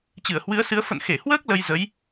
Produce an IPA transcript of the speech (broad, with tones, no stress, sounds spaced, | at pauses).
t͡ɕ ɨ˧˩ ə̯ h w ɨ˨˦ ə̯ s ɨ˨˦ ə̯ f ə̰˧˨ n x e˧˩ h w əː˦˥ k̚ l ə˧ j z ə˨˦ j